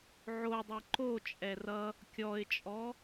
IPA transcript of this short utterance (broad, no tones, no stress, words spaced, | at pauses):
ʕodˤɛ ǃot͡ʃʼɛ rʌ | kʲɔɪ̯t͡ʃʼɔ